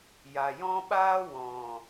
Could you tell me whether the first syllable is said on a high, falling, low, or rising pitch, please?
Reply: low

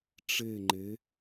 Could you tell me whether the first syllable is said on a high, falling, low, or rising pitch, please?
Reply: falling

